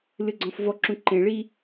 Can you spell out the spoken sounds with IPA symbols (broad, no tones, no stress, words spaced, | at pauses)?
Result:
lɨɡ͡ǀɔ̃fvɔǁũ ǃẽɭi